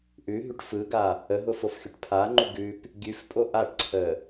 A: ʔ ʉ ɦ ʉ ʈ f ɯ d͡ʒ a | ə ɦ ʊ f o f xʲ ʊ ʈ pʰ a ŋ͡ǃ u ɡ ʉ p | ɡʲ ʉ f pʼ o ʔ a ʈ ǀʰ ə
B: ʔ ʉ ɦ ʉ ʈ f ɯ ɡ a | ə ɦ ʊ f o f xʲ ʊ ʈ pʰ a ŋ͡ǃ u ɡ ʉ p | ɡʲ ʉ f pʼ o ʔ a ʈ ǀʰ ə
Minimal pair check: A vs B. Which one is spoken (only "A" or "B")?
B